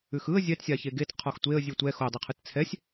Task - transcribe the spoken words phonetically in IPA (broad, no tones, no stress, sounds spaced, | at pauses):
ʉ x ɯ ə̯ zʲ ɛ t sʲ a ç e ɡ e t qʰ ɔ x tʷ e ə̯ zʲ ʉ tʷ ɛ x o dˤ e qʰ ɯ t t͡sʰ ɛ sʲ